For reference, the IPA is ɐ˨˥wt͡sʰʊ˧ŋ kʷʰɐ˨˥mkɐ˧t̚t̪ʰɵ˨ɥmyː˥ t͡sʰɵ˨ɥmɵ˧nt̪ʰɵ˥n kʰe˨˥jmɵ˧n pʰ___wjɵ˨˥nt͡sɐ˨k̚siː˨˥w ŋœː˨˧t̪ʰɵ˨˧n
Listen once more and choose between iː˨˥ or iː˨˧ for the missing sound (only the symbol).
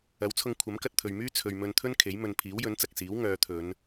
iː˨˥